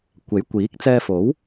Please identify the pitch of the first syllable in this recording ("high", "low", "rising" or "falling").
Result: rising